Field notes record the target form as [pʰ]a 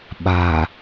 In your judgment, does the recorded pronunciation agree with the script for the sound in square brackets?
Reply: no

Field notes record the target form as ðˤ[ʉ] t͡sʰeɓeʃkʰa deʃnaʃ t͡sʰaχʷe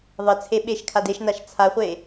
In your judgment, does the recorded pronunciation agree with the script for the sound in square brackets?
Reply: no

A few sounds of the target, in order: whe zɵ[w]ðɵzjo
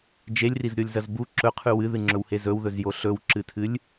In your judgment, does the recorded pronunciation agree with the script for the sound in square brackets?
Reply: yes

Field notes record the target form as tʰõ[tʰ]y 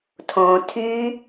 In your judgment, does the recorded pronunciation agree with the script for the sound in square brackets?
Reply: yes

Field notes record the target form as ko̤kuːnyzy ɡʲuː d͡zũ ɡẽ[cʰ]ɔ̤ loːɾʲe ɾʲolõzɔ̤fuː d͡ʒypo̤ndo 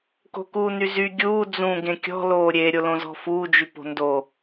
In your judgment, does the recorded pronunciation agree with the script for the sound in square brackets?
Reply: no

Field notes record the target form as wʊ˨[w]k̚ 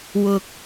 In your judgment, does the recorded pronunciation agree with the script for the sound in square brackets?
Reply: no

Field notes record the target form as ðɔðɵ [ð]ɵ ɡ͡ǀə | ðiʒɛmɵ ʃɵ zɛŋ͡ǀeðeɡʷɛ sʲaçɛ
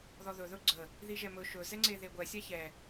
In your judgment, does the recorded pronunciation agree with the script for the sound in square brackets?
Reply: yes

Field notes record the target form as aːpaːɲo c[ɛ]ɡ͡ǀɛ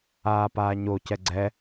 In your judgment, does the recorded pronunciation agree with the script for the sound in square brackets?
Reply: yes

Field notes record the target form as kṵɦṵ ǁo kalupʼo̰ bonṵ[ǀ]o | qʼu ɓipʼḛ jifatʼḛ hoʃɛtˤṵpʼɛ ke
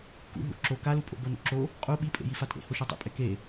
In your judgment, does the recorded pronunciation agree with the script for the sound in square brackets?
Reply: no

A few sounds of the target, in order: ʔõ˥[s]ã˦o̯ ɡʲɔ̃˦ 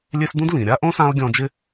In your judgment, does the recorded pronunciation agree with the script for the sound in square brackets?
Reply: yes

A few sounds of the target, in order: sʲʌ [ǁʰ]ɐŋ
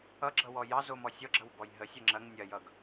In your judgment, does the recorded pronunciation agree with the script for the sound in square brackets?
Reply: no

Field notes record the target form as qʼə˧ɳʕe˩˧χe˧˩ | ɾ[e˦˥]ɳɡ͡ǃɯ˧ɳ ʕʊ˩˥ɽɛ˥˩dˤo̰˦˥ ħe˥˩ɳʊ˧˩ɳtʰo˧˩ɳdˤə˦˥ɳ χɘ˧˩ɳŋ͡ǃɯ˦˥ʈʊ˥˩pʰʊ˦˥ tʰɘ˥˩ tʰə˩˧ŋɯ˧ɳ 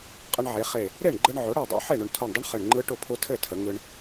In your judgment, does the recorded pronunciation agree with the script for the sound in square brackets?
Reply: no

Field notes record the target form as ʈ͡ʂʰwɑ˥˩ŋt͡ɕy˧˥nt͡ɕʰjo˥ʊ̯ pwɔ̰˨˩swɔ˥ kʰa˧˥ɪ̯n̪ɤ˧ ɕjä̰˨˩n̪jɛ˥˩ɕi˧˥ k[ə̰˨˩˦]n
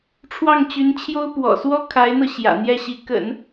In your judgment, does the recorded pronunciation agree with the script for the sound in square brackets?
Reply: yes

